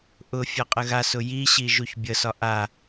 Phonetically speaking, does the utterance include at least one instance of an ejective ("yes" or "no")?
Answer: yes